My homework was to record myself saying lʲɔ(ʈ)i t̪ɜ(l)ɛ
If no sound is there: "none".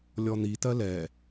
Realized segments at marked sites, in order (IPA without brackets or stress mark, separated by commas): n̪, l